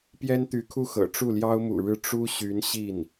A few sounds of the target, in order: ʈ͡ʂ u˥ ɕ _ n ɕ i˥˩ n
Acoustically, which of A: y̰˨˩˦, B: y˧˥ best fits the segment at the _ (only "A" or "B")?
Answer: B